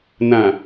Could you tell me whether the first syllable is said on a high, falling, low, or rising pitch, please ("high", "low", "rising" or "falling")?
low